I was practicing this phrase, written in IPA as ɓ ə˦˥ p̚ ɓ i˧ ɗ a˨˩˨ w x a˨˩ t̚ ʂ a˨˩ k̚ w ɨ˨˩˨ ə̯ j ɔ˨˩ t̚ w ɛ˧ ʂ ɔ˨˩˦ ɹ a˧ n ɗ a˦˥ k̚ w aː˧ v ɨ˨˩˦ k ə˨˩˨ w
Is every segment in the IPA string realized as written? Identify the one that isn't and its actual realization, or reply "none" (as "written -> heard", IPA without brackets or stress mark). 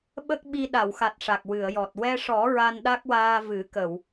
p̚ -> k̚